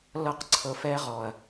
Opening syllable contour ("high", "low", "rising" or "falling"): high